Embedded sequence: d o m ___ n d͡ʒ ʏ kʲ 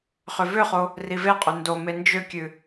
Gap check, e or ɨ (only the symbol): e